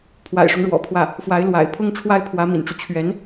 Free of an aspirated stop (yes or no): no